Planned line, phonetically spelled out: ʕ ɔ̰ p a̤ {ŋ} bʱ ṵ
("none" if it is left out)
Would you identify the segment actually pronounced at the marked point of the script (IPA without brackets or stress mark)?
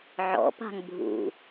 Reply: ŋ